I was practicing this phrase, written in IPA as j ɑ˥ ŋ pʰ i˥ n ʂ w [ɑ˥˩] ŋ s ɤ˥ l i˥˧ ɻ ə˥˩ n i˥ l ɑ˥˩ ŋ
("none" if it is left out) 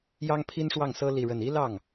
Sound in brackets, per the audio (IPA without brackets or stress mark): ɑ˥˩